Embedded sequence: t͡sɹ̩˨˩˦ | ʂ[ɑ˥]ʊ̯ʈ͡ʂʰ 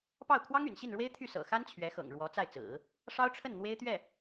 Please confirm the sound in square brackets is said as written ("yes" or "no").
yes